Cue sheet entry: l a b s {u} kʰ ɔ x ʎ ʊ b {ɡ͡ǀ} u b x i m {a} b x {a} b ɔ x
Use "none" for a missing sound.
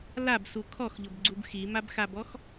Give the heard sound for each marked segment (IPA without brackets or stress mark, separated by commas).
u, ɡ͡ǀ, a, a